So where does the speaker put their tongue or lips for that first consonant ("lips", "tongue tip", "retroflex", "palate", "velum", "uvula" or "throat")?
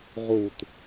uvula